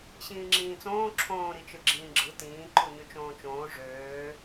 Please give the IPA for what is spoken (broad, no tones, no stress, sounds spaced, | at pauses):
ɕ ĩː ŋ͡ǁ ĩː t͡s õː ǁʰ õː ɾ i t͡ʃ ɯ ɡ͡ǁ ĩː ɡ͡ǁ ɯ t ĩː ǃ u ɲ y t͡ʃ õː t͡ʃ õː ʐ øː